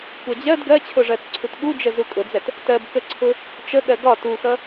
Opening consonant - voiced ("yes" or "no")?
no